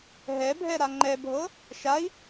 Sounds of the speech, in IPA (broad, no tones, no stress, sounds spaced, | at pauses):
ɦ ɛ bʱ ɛ ɾ a ŋ͡ǃ ɛ bʱ ɤ | ʃ a i̯